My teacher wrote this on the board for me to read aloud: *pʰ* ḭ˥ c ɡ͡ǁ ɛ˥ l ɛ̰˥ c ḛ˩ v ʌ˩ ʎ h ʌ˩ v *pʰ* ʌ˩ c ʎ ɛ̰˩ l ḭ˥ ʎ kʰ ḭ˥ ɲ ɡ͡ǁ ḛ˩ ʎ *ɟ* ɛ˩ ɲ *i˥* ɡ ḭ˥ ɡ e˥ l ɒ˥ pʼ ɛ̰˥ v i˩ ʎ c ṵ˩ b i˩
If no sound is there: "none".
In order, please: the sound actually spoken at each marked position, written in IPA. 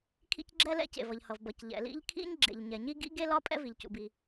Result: kʰ, b, ɲ, i˥

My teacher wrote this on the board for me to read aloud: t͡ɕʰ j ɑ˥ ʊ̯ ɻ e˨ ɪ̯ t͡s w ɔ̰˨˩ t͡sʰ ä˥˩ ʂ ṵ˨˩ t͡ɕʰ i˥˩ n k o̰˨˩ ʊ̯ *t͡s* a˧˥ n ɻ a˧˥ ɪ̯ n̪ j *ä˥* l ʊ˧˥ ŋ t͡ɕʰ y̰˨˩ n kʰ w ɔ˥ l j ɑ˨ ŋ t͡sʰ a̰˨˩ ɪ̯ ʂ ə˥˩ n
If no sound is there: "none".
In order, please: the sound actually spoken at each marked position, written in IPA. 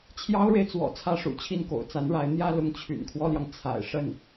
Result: t͡s, ä˥˩

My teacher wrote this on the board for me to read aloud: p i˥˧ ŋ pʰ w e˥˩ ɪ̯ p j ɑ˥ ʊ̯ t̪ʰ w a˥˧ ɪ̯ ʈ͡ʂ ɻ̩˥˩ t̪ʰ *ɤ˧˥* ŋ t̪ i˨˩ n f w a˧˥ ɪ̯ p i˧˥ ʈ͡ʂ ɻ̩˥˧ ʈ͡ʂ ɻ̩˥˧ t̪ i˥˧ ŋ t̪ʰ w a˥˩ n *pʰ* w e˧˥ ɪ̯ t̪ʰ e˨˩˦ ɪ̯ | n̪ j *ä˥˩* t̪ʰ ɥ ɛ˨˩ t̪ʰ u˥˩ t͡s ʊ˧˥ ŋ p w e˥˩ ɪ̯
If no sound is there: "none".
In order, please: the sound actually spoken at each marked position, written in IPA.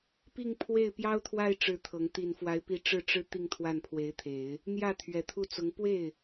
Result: ɤ˧˥, pʰ, ä˥˩

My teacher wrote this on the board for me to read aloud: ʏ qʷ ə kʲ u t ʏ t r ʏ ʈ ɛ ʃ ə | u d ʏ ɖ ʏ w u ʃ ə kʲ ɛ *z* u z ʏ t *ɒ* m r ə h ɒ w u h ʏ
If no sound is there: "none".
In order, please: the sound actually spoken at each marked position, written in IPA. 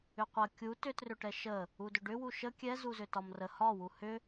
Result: z, ɒ

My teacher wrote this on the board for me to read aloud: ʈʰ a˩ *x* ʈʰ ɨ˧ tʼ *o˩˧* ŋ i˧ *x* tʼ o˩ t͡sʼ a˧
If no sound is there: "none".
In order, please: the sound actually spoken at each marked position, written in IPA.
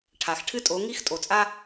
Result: x, o˩˧, x

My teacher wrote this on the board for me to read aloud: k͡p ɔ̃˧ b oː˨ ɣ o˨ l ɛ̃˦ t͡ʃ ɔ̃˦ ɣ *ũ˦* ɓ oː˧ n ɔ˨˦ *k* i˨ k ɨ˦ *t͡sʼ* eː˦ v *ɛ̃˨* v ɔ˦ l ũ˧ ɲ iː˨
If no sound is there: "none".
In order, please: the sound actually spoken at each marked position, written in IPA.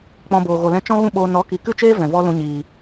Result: ũ˦, k, t͡ʃ, ɛ̃˨

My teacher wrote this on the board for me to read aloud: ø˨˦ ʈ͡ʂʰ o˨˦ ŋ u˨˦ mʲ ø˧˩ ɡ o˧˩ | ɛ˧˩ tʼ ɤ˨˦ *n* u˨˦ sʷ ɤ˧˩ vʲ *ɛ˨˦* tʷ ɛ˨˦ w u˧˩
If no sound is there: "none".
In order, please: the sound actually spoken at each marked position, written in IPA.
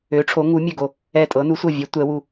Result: n, ɛ˨˦

